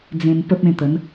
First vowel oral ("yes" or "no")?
no